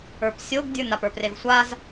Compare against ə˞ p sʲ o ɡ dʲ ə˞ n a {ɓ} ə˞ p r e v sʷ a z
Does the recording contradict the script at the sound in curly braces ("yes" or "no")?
yes